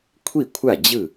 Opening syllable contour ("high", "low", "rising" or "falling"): falling